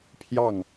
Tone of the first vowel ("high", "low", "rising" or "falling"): falling